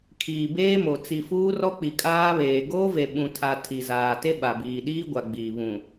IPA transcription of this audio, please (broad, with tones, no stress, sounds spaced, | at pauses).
kʰ iː˨ b eː˦ m o˨ t͡s i˨ f uː˦ r ɔ˦ k͡p i˨ kʼ aː˦ β eː˨ ɡ oː˦ v e˨ ɓ ũ˨ tʰ a˨ tʰ i˨ z aː˨ t e˦ ɓ a˨ b iː˨ ɗ iː˦ ɡʷ a˨ ɡ͡b iː˨ β ũ˨